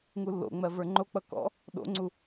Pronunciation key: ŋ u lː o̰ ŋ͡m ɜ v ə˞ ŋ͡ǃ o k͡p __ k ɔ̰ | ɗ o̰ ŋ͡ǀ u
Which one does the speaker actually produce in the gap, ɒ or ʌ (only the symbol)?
ʌ